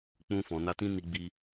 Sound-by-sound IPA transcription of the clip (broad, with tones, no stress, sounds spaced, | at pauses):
k͡p ũ˧ f ɔ̃˨ n a˧ t ĩ˦ n i˧ ɡ͡b i˧